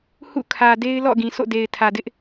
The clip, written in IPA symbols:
h ṵ˦˨ kʰ ä˨ d e˦ ɪ̯ l ɔ̰˦˨ ɡ ĩ˨ s o̰˦˨ d e˨ ɪ̯ tʰ ä˨ d ɪ˦ ʔ

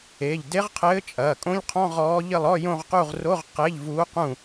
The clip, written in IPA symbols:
e˩˧˩ ʎ d e˧˥ ʁ qʰ ɘː˧˥ t͡ʃʼ ɐː˩˧˩ kʼ õ˧˥˧ ʎ qʰ ɔ̃˧˥˧ ʁ ɔː˧˥ ʎ ɘ˦˨ lˠ ɔ˧˥˧ j õ˦˨ ʁ q u˦˨ ʁ r o˧˥˧ ʁ q e˧˥˧ ʎ v uː˧˥ q ũ˦˨

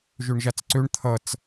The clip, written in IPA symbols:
ʒ ø ɳ ʒ a t͡s ǀ ø ɳ t̪ʰ ʌ t͡s

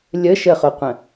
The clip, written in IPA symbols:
lʲ ə ʃ ə χ o qʷ ə̃

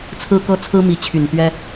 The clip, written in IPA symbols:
t͡sʰ ɹ̩˦ k ɤ˦ t͡sʰ ɹ̩˦ m i˨˦ t͡ɕʰ y˨˩ n t̪ ɥ ɛ˦

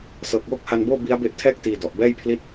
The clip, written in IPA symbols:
s ɤː˨˩ k̚ w o˦˥ k̚ h a˧ n b oː˥˩ b i˦˥ a̯ b e˦˥ ʔ tʰ ɛː˥˩ k̚ t iː˧ d ɔ˨˩ ʔ b ɛː˥˩ j pʰ l i˥˩ t̚

